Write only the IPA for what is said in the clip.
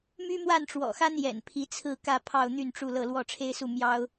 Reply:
m y˥ m w a˥˩ n ʈ͡ʂ w ɔ̰˨˩ x a˥ n j ɛ̰˨˩ n pʰ i˧˥ t͡sʰ ɹ̩˥˧ k ä˥˧ pʰ ɑ˥˧ ʊ̯ n̪ y˥˧ n ʈ͡ʂ u˥˧ l ɤ˥˧ l w ɔ˥˩ ʈ͡ʂʰ e˥ ɪ̯ s u˥˩ m j ɑ˥ ʊ̯

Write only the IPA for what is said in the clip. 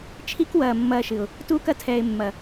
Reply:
t͡ʃʰ i˦ k w ɐː˨ mː ɐː˧ ʃ ɨ˨ ʊ̯ | t uː˧ k ɐ˧ tʰ ɛː˨ ɪ̯ mː ɐ˨

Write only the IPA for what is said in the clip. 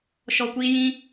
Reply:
ʃ ɔ˧ kʷ iː˦ j ĩ˦

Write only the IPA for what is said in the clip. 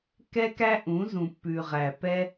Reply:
k ɛ˦ k æ˦ ʔ ũ˨˦ z ũ˨ pː ʉ˨ ʁ æ˨ p ɛ˦

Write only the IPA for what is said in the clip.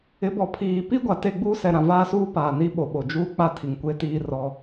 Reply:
ɪ˨˦ b ɔ˨ pʰ iː˨ p i˦ ɡʷ a˨ t e˦˨ ɡ͡b uː˦ s ɛ˨ ɾ ã˨ v aː˦ s uː˦ p aː˨ n i˦ ɓ o˨ ɓ o˨ d͡ʒ uː˦ k͡p a˦ tʰ i˨ ŋ kʷ e˦ t iː˦ r ɔ˦

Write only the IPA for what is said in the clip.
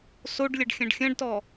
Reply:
s o ɖ lʲ ɐ ɖ xʲ ɐ̃ ɖ xʲ ɐ̃ ɖ t ɔ

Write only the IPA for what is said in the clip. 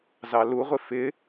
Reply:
z ɑ l u ʁʷ ɪ f ɪ

